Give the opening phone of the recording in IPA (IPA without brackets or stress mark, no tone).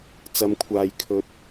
t͡s